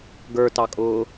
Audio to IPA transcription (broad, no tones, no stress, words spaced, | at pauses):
ɡə˞tɑkʼʊː